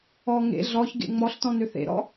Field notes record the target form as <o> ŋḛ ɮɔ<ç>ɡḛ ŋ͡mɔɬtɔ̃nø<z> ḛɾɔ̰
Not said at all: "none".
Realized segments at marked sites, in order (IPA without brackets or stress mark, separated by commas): ɔ, ç, θ